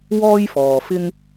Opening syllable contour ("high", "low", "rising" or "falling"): high